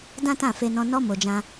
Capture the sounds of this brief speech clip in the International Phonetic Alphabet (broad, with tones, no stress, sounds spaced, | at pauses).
d ã˦ t ã˦˨ f e˧ n ɔ̃˧ n ɔ˦ m o˧ d͡ʒ ã˦